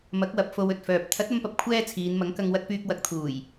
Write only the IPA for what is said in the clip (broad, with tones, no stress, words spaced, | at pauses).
mɐ˨˥k̚wɐ˨p̚ fo˧wɵ˨t̚fœː˨p̚ t̪ʰɐ˨˥t̚ ɐ˥mpɐ˧p̚ kʷʰɛː˥t͡sʰiː˨˧n mɐ˨˥ŋkɐ˧ŋ wɐ˧t̚pyː˧k̚ wɐ˨k̚t̪ʰuː˨˩j